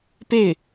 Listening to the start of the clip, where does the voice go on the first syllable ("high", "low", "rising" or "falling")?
falling